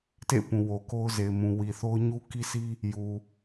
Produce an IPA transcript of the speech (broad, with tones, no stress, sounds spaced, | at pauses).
t ḛ˦˨ p ũ˨ w o˨ k o˦ ʊ̯ z e˨ ɪ̯ m ũ˨ w i˨ θ o˦ ʊ̯ ɲ u˦ k i˦ sʰ i˦ | j u˨